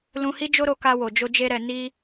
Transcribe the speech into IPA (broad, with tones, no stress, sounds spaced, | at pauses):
l ũ˧ h i˦ d͡ʒ o˦ ɾ o˧ k a˧ w o˨ d͡ʒ o˧ d͡ʒ e˦ ɾ ɛ˧ n i˦